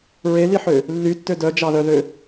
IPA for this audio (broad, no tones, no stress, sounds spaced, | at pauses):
ɹ e l i ħ ø | lː y tː ø d œ d͡ʒ ɑ ð œ ð ø